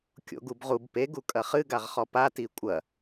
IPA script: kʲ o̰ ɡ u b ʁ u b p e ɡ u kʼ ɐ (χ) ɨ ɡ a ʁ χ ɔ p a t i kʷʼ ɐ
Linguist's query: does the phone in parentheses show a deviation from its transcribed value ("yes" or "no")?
no